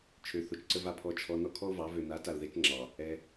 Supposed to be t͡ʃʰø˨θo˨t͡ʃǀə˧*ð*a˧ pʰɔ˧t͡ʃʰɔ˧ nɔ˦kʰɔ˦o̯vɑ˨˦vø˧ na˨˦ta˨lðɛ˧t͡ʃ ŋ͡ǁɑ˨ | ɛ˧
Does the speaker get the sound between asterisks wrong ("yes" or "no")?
yes